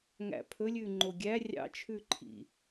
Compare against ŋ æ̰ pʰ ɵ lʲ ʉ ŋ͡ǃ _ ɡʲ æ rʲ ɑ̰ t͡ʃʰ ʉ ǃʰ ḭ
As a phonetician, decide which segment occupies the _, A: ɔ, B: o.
B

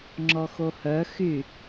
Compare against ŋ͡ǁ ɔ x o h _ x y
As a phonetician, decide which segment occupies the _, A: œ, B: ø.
A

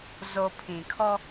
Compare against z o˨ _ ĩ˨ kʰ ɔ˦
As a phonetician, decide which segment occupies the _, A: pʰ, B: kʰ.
A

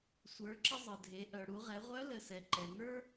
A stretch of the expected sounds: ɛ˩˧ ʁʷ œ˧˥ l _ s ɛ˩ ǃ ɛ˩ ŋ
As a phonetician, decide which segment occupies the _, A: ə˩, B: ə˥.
A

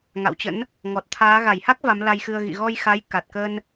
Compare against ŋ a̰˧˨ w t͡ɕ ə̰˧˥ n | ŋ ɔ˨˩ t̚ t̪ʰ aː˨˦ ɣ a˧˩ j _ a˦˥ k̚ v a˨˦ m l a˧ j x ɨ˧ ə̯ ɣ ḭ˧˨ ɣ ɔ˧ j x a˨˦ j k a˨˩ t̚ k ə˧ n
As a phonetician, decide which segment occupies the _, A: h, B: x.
A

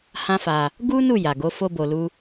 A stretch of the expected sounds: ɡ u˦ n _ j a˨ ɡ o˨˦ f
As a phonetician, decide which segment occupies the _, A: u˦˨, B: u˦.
A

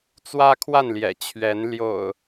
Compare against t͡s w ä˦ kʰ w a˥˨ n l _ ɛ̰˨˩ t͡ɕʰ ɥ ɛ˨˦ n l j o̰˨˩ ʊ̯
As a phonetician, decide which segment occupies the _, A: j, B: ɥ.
A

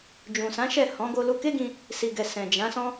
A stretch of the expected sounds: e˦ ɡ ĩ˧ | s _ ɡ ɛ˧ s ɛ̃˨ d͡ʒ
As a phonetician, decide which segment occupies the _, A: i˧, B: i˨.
A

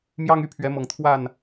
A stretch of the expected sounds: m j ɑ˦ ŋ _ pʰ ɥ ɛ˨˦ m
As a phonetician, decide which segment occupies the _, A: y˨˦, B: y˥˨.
B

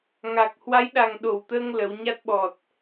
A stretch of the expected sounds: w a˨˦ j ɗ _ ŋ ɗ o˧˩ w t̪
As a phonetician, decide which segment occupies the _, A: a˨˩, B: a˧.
A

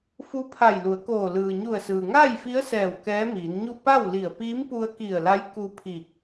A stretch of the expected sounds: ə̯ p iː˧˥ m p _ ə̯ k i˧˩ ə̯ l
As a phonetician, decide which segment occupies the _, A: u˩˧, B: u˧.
B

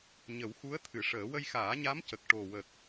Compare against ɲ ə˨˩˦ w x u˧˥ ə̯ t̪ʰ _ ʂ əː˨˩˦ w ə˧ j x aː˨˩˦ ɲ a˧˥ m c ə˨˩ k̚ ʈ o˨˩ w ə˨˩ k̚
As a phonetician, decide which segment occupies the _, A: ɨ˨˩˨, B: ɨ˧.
A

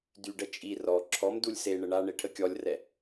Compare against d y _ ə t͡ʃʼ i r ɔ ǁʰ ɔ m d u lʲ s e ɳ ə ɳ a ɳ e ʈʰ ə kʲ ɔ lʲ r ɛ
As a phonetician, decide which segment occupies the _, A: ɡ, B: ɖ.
B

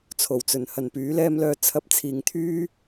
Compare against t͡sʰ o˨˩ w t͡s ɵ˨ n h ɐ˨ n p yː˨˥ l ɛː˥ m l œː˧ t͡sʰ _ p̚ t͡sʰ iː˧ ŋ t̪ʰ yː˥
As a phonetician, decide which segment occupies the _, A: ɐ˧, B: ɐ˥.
B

